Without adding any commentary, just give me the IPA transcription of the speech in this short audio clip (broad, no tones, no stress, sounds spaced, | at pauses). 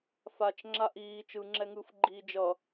f a t͡ʃ ŋ͡ǁ a ʔ iː t͡ʃ ɯ ŋ͡ǁ ɛ ŋ ɯː f ɡ͡ǃ iː d͡ʒ ʌ